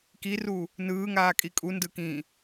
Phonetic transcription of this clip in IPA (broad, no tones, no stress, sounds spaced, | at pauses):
k i r u | n ɯː ŋ aː kʼ i kʼ u n d ɯ k ĩː